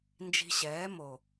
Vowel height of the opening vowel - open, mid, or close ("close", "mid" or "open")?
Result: close